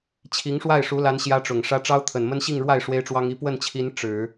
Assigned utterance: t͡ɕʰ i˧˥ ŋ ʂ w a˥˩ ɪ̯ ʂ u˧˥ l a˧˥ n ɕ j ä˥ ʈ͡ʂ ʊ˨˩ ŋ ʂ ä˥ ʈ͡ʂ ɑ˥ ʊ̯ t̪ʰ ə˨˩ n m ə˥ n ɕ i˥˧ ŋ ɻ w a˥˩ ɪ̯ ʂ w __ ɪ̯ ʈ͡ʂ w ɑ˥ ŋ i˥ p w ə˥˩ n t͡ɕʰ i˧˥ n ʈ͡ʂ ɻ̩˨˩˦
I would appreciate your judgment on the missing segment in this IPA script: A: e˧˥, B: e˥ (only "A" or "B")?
B